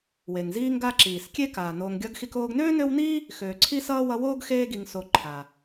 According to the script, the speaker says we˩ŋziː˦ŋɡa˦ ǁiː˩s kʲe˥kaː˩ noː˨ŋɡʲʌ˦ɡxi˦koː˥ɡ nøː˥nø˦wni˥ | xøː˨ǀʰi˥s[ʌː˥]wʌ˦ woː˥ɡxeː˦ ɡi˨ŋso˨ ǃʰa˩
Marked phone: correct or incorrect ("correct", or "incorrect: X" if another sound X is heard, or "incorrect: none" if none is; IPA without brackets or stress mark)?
correct